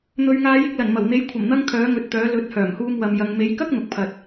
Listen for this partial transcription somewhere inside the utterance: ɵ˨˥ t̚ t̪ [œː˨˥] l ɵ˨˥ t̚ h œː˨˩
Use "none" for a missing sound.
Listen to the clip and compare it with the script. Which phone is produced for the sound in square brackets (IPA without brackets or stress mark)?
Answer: œː˨˥